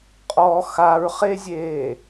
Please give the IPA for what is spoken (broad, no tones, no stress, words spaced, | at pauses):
qʼɔ xaɹχezʲeː